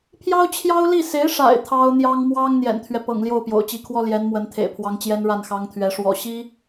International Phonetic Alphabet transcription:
pʰ j ɑ˥ ʊ̯ t͡ɕʰ j ɑ˥ ʊ̯ l i˥˩ s e˧˥ ɪ̯ ʂ a̰˨˩ ɪ̯ t̪ʰ ɑ˥ ʊ̯ n̪ j ɑ˥ ŋ m w ɑ˥ ŋ n̪ j ɛ̰˨˩ n t̪ʰ ɥ ɛ˦ p ɤ̰˨˩ ŋ l j o˥˩ ʊ̯ p j o̰˨˩ ʊ̯ t͡ɕ i˧˥ kʰ w ɔ˥ l j ɛ˧˥ n m w ə˧˥ n t̪ʰ ḛ˨˩ ɪ̯ pʰ w ɑ˧˥ ŋ t͡ɕ j ɛ˥ n ɻ a˥˩ n x ɑ˥ ŋ t̪ʰ ɥ ɛ˧˥ ʂ w ɔ̰˨˩ ɕ i˥

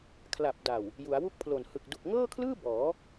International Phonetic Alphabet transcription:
kʰ l a˨˩ p̚ d a˨˩ w | j u˩˦ a̯ w u˥˩ k̚ pʰ l o˨˩ n h ɯ˨˩ k̚ d u˨˩ k̚ ŋ ɤː˥˩ kʰ l ɯː˥˩ b ɔː˩˦

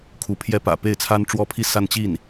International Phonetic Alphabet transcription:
kʰ u˧˥ pʰ j ɛ˥ p ä̰˨˩ p e˥˩ ɪ̯ t͡sʰ a˥ n ʈ͡ʂ w ɔ˥ pʰ i˥˧ s a˥˧ n t͡ɕ i˥˩ n

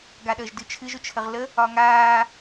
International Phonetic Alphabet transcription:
ɡ a ɗ əː ʒ d ɨ t͡ʃʰ ɨ ʒ ʊ t͡ʃʰ ə ʁ l ə | ɒ ŋ aː

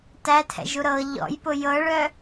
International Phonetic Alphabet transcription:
t æ tʰ ɛ̰ ʒ u ɾ ɤ ʎ ɔ̰ j p ʊ j ɤ ɭ œ

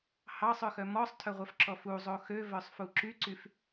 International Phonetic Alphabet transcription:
h ɑ sˤ œ x œ m ɔ sˤ tʰ œ ʁʷ œ f ǁ ɔ f u zˤ o x ø v œ sˤ f u ǁ y ǀ y f

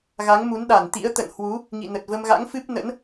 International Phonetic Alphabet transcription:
ɣ a˨˦ ŋ m u˨˦ n ɗ a˧˩ n t̪ ḭ˧˥ ə̯ t̪ ə̰˧˨ n h w u˨˦ | ŋ ḭ˧˨ n ə˨˩ t̚ v ə˧ m ɣ a̰˧˥ ŋ f ɨ˦˥ p̚ n ə̰˧˥ n

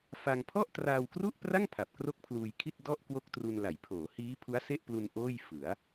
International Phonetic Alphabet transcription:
f a˧ ŋ pʰ ɔ˥˩ ʔ t r aː˧ w k r u˥˩ ʔ p r a˥˩ ŋ pʰ a˨˩ p̚ k r o˥˩ k̚ pʰ l uː˧ j kʰ i˥˩ t̚ d ɔ˥˩ ʔ k w o˥˩ k̚ t r u˧ n l a˩˦ j pʰ oː˩˦ h iː˦˥ pʰ u˦˥ a̯ s e˥˩ ʔ p l u˧ n ʔ oː˥˩ j f ɯ˩˦ a̯

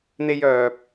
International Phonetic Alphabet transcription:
n̪ e˧ j œː˨ p̚

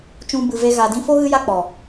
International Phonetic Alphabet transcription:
t͡ʃ ũ˧ b ɨ˨ v e˧ ɣ a˨ d ĩ˧ f o˦ ɣ ɨ˦ j a˦ k͡p ɔ˨

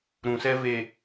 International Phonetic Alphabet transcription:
ɾ ũ˨ s ɛ˦ v e˨

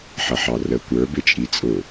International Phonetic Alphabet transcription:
ħ ʌ ħ ɑ r ə kʷ ə˞ b ɪ t͡ʃʼ i t͡sʼ ʊ

